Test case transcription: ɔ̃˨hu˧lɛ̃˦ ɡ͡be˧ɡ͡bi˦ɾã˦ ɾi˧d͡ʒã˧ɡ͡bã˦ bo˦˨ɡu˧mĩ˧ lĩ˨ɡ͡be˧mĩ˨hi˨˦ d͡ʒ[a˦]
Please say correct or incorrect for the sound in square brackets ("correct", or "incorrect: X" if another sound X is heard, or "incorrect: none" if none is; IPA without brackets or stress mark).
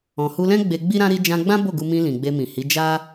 correct